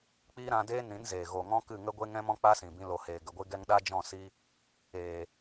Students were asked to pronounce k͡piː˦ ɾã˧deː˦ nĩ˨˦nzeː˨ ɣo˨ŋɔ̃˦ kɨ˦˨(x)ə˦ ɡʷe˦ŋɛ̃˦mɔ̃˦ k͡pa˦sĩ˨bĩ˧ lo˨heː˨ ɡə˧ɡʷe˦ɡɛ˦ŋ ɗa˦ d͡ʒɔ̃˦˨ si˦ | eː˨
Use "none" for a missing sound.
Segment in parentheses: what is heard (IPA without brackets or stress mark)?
ŋ